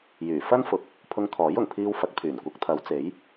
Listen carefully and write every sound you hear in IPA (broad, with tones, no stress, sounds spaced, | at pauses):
j yː˨˩ f ɐ˥ n f ʊ˨˥ k̚ | pʰ ʊ˧ ŋ t̪ʰ ɔː˨˥ j ʊ˨˩ ŋ pʰ iː˧ w f ɐ˨˥ k̚ pʰ yː˨˩ n kʷ ɐ˨˥ k̚ t̪ʰ ɐ˨˥ w t͡s e˨˥ j